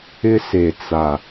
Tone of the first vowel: high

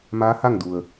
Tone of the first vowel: rising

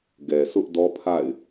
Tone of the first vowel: low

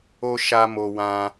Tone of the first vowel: high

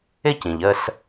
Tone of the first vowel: falling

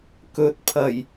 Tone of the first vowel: rising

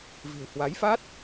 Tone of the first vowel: low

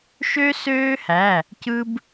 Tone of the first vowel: high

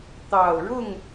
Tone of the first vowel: low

